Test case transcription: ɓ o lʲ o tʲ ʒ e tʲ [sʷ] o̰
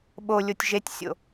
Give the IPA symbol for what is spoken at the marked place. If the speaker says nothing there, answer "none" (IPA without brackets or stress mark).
sʲ